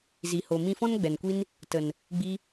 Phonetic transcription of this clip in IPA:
z i˨ h o˨ m ĩ˧ f ɔ̃˦ n ɡ͡b ɛ˨ n kʷ i˦ n | t ə˨ n | ɡ͡b i˧

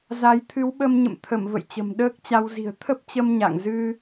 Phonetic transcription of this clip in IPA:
z a˨˦ j t̪ʰ ɨ˨˦ w ɓ ə˧ m ɲ ə̰˧˨ m t̪ʰ ə˧˩ m v ə̰˧˨ j t͡ɕ ə̤˨˩ m ɗ əː˦˥ k̚ t͡ɕ a˧ w z i̤˨˩ ə̯ t̪ʰ ə˦˥ p̚ t͡ɕ ə˧ m ɲ a̰˧˨ ŋ z ɨ˧

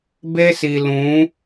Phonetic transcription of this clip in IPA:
b e˦ s i˨ l ũ˨˦

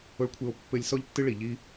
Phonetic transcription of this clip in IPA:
o˧ ɭ kʷʰ ɘ˧ o̯ pː ɘ˧ lʲ s ɔ˦ ʎ tː ɨ˦ ɭ i˨ ʎ i˦

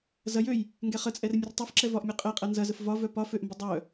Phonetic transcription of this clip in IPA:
z ɐ j ø j | ŋ ɡ ɛ χ ə t͡sʼ ɛ r mʲ ə r tˤ œ f ǁ ɛ v ɒ ʔ mʲ ø qʼ ɛ qʼ ɐ n z ɐ z ə f v ɒ v œ p ɒ f ø ʔ m b ə dˤ œ

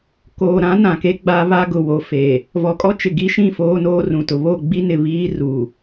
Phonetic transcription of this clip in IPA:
k oː˨ ɾ ã˨˦ n ã˨ k e˦ ɡ͡b a˦ β a˦ ɡ ʊ˨ w o˨ f e˨ | v ɔ˨ kʼ ɔ˦ t͡ʃ ɪ˨ ɡ i˦ ʃ ĩ˦˨ f oː˦ n oː˦ r ũ˨ t ʊ˨ β o˦˨ ɡ͡b i˦ n ɪ˨ β iː˦ r u˨

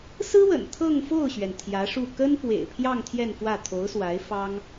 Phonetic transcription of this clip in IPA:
s ɹ̩˥ w ə̰˨˩ n t̪ʰ ɤ˥˧ ŋ f o˥˩ ʊ̯ ɕ ɥ ɛ˩ n t̪ʰ j ä˧˥ ʂ u˥˩ k ə˥ n p w ḛ˨˩ ɪ̯ pʰ j ɑ˥˧ ŋ t̪ʰ j ɛ˥˧ n f w ä˥˩ t̪ʰ o˧˥ ʊ̯ s w a˧˥ ɪ̯ f ɑ˥ ŋ

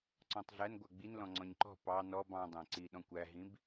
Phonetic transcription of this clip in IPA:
ǀ ɔ̃ tˤ ɮ æ n ɡʷ æ ɡ͡b i n l ɔ̃ ŋ͡ǀ ɔ̃ ɲ ǃ ɔ̤ p ɑ n ɔ b ɑ̃ dˤ æ̃ ǀ i ɗ ɔ̃ kʷ æ ɦ ĩ b

